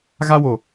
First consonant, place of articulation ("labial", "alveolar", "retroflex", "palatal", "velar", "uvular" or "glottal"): velar